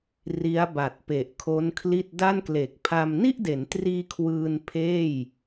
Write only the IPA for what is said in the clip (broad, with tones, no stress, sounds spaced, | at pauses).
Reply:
r i˦˥ a̯ b a˨˩ t̚ p e˨˩ ʔ kʰ o˦˥ n kʰ l i˥˩ t̚ d a˥˩ n k l e˨˩ k̚ pʰ a˧ m n i˥˩ ʔ d e˩˦ n t r iː˧ kʰ w ɯː˧ n pʰ eː˥˩ j